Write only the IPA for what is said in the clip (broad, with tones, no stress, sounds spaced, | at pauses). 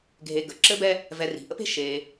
ɡʱ e˨ ɡ ə˩ ǁ ɘ˦ b ɛ˦ | v ɛ˨ r i̤˩ ʔ ə̰˥ p e̤˦ ʃ e˨